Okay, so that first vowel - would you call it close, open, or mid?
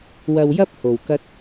open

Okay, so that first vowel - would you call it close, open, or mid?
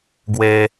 mid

